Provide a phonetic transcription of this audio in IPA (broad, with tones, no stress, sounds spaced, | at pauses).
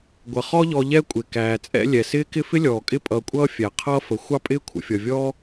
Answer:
ɡʷ ʌ˩ χ ɔ˦ ʎ ɔ˨ ʎ ɛ˦ kʷʼ ɪ˩ k æː˩ t͡sʼ ɛ̰˦ lʲ ɛ˩ s ɪː˥ k ɪ˥ f ɪ˥ lʲ ɔː˩ kʼ ɪ˦ pʼ ʌː˨ kʷʼ ʌː˦ fʲ æ˩ qʰ ʌː˥ f ə˩ xʷ ɑ˥ pʼ ɪː˥ kʷʰ ə̰˨ fʲ ʌ˩ vʲ ɔː˦